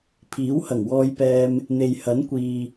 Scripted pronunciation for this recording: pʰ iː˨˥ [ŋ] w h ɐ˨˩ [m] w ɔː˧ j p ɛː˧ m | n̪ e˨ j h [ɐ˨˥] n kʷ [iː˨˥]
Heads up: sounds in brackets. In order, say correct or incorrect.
incorrect, incorrect, correct, incorrect

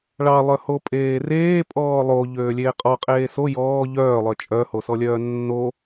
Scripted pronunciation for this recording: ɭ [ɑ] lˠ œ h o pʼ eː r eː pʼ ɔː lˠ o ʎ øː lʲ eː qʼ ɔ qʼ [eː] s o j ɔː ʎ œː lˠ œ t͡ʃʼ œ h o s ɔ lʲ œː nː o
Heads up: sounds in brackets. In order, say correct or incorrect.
correct, correct

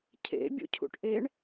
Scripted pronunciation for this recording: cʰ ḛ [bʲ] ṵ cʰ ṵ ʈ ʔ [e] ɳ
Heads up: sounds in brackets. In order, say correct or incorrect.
correct, correct

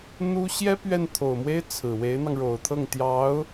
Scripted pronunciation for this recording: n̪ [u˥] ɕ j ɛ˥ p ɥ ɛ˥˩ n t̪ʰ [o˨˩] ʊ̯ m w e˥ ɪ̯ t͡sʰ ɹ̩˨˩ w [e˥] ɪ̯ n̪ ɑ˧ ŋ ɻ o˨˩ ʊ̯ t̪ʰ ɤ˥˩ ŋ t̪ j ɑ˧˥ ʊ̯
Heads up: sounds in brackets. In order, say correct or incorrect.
correct, correct, incorrect

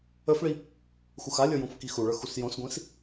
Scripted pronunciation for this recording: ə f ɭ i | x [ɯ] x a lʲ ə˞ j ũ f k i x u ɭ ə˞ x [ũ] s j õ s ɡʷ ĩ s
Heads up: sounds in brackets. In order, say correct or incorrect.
incorrect, incorrect

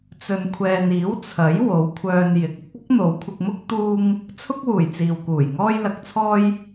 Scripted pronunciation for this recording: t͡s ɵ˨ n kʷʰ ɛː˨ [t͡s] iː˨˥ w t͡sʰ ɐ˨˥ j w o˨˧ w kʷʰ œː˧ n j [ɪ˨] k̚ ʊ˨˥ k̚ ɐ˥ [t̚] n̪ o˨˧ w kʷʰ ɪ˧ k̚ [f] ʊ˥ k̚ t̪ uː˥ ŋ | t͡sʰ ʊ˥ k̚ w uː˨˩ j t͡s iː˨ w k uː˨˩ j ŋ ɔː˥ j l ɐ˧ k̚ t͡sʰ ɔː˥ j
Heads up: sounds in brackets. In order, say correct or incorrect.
incorrect, correct, incorrect, incorrect

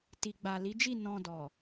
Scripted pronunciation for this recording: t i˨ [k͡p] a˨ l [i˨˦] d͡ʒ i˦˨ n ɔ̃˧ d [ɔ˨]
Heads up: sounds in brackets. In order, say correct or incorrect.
incorrect, correct, correct

